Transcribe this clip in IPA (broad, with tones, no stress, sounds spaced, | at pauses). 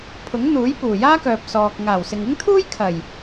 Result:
pʰ ʊ˨˥ ŋ n̪ uː˨˥ j p uː˨˩ j aː˥ k œː˨ p̚ s ɔː˨ k̚ ŋ aː˨˩ w s ɪ˨ ŋ ɪ˥ ŋ t̪ʰ uː˥ j kʰ ɐ˨˩ j